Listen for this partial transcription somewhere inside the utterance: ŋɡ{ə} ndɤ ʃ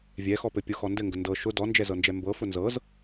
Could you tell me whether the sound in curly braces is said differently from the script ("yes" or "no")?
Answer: no